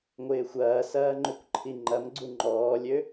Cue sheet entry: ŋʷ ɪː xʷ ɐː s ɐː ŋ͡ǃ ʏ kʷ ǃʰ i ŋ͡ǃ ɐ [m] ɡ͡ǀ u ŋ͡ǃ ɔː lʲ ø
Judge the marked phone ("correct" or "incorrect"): correct